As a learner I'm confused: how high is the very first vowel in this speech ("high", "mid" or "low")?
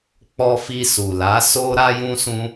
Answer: mid